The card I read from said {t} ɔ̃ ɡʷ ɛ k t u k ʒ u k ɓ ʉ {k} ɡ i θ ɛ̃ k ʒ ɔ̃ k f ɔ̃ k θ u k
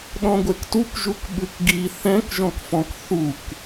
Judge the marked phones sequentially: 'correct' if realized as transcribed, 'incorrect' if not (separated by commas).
incorrect, correct